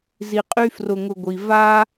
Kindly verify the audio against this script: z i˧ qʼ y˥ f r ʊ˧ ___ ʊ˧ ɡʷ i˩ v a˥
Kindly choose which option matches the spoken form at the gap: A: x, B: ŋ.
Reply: B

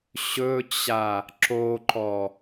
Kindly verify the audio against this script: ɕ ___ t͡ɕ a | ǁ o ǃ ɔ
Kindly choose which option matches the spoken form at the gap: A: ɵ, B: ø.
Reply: A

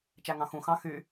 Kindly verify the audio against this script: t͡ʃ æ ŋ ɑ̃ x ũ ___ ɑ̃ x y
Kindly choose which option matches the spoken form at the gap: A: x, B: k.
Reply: A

